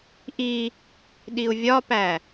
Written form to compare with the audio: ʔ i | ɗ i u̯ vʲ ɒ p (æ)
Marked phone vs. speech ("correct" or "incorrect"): correct